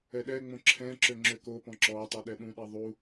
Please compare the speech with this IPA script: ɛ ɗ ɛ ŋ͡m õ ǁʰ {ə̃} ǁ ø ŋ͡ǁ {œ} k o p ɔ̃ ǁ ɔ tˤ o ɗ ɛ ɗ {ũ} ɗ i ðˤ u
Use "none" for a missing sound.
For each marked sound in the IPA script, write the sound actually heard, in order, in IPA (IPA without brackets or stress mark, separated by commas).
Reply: ɛ̃, ø, ũ